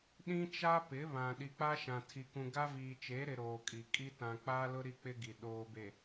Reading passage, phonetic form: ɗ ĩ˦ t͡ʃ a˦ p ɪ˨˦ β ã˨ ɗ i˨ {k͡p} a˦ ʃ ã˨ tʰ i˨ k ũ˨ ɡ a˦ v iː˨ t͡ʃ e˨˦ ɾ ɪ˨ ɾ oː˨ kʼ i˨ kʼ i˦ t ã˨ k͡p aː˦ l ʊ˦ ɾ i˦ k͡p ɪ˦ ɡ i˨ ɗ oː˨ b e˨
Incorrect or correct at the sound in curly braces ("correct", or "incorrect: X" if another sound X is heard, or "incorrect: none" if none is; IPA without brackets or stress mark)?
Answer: correct